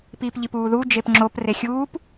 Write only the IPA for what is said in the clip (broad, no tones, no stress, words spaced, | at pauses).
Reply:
piːpʎipuːðu d͡ʒepŋ͡ǁop rexʲuːp